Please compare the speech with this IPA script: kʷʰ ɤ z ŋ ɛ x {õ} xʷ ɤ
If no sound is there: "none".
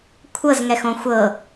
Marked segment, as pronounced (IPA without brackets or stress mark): õ